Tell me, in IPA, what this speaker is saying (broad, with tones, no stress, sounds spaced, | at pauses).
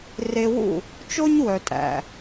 r e˧ w ṵ˦˨ | t͡ʃ o˦ ɲ w œ˨ tʼ æ̰˨